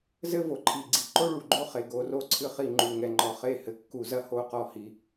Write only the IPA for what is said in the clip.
z ɘ˦ v o˨ ǃʰ i˨ ɡ͡ǀ i˨ ǃ o˦ ɭ u˨ ɡ͡ǃ o˦ χ e˨ ɡ o˨˦ r o˦ ǀʰ ɨ˦ χ i˦˨ ŋ͡ǃ u˨ ŋ ɛ˨ ŋ͡ǃ ɔ˨ χ e˦˨ h ɘ˨ kː u˨ z ɐ˦ h o˦˨ q ɔ˦˨ h i˨

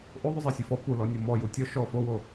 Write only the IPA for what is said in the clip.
ʔ o ðˤ ʉ zˤ ɛ sʲ u f ɔ p u l ɔ nʲ ɔ m ɔ j u tʲ ɔ ʃ ɔ f o w o

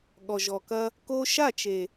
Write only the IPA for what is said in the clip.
ɠ ɔ˨ ʒ ɔ˨ k ɐ˦ | k o˧ ʃ a˦˨ t͡ʃ e˨

